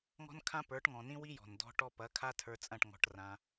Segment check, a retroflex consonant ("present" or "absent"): present